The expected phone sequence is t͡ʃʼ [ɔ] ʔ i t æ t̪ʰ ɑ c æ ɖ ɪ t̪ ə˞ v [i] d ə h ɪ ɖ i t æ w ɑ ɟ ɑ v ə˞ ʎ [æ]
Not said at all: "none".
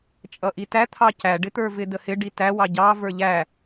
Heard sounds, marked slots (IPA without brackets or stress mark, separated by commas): ʌ, ɪ, æ